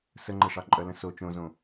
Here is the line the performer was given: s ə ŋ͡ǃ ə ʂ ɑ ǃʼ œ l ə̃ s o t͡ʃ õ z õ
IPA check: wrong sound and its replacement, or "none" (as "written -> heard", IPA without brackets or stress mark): none